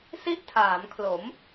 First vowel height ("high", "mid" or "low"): high